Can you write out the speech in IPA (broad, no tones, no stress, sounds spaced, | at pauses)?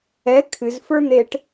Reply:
ɛ kʰ ɨ z f ə˞ n̪ e ʈ